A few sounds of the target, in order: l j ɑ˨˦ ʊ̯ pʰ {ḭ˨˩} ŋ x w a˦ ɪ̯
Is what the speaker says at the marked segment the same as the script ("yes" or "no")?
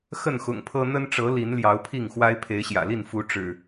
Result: no